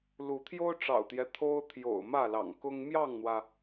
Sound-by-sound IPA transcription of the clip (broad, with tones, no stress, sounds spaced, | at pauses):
l u˨˦ t̪ʰ j o˦ ʊ̯ ʈ͡ʂ ɑ̰˨˩ ʊ̯ t̪ j ɛ˦ t̪ʰ o˦ ʊ̯ t̪ʰ j o̰˨˩ ʊ̯ m ä˥˨ l ɑ̰˨˩ ŋ k ʊ˦ ŋ m j ɑ˥˨ ŋ n̪ w ä˩